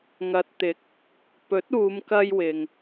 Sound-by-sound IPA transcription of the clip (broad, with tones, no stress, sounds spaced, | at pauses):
ŋ ɐ˨ t̚ t̪ ɪ˨˥ k̚ | p ɵ˨˥ t̚ uː˨˧ m k ɐ˧ j w ɪ˨ ŋ